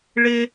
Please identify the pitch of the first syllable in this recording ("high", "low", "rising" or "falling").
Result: high